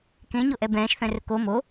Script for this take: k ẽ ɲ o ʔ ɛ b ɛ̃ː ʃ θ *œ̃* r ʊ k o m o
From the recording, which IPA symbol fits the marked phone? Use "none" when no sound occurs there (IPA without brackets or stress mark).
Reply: œ̃